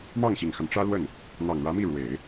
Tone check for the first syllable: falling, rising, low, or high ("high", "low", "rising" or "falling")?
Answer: falling